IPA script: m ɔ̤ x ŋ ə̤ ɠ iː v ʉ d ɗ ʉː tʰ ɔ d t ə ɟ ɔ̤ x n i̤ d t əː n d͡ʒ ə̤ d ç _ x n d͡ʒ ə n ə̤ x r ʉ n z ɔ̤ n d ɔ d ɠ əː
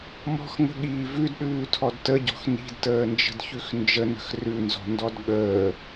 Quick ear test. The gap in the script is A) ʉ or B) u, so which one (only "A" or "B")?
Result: A